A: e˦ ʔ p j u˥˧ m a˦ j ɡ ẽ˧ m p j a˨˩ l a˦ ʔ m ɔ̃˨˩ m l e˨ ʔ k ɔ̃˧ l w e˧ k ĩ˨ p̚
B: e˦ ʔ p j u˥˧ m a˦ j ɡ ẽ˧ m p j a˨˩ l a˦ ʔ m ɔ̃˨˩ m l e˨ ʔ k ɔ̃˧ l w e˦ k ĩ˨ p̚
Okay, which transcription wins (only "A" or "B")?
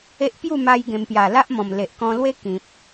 B